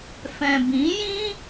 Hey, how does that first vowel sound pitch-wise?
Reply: low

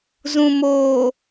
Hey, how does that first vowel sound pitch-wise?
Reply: low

